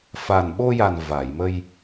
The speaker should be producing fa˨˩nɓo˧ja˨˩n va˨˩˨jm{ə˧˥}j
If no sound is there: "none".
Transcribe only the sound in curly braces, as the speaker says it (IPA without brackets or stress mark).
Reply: ə˧